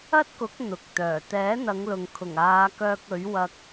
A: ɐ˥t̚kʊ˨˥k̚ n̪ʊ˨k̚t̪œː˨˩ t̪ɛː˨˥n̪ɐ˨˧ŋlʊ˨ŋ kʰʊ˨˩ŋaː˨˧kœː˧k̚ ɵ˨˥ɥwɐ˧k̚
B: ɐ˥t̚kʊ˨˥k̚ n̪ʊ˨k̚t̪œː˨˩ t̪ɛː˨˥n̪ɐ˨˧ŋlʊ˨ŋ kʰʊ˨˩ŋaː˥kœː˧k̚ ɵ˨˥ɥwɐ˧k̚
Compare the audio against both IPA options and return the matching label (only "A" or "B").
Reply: A